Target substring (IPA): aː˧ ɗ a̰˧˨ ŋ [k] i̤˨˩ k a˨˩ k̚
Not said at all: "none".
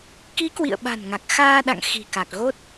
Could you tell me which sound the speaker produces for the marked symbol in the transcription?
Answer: x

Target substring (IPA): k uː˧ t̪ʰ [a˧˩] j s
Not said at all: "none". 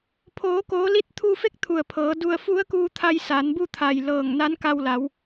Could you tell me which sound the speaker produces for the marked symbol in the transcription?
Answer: a˧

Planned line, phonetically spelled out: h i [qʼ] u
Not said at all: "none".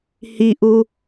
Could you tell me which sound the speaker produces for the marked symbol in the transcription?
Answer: ʔ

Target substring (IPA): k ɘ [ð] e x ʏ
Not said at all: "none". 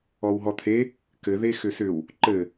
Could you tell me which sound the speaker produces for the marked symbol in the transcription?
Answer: ð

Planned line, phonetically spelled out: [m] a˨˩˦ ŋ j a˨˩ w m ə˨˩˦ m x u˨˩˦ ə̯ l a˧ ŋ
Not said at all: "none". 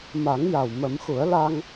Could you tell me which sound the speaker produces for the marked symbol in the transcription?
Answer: m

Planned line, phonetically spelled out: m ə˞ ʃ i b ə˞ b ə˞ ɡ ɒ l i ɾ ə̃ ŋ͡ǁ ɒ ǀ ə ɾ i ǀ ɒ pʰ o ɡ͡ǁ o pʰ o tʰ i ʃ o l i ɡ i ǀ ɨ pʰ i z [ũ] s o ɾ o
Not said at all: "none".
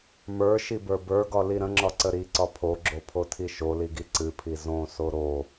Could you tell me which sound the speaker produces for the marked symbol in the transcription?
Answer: õ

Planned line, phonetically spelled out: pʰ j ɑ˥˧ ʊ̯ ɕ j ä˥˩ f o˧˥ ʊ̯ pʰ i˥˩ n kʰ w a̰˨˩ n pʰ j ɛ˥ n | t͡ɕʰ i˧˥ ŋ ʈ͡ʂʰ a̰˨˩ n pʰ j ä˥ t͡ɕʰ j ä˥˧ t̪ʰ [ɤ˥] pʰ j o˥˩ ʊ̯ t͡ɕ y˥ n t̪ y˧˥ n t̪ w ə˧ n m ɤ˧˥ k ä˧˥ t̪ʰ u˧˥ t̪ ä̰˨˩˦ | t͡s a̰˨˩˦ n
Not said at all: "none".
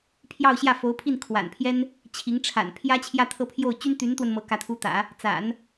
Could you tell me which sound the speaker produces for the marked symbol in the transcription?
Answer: ɤ˥˧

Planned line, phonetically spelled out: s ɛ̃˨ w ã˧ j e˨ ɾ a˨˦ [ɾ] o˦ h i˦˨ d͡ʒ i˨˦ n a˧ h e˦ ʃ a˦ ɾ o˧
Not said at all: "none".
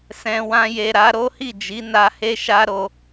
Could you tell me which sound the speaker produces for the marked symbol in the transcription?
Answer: ɾ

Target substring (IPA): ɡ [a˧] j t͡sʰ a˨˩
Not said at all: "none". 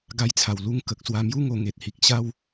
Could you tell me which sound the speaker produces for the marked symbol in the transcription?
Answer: a˧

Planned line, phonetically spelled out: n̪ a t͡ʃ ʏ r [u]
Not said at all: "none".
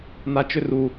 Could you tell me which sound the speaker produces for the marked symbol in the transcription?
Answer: u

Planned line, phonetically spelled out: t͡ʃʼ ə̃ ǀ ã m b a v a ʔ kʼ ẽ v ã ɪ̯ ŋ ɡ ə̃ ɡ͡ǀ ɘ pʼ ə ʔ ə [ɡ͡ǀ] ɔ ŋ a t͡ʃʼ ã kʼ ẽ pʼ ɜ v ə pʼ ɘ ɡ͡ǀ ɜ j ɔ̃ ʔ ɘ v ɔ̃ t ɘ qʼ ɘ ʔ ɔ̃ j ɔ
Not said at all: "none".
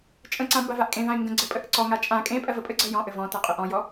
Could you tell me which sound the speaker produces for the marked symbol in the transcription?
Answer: ǀ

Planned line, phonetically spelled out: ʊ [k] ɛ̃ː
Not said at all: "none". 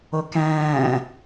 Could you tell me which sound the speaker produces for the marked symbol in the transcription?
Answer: k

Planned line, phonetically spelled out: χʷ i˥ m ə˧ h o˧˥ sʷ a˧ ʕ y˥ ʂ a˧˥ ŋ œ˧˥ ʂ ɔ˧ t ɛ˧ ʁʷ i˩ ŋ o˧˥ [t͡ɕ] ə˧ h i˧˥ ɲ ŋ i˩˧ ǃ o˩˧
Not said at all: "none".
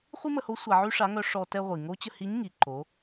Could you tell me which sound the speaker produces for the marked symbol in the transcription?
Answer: t͡ɕ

